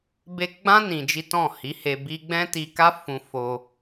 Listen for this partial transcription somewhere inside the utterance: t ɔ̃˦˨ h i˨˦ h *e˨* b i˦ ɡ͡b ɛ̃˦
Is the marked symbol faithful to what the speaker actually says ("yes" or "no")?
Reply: no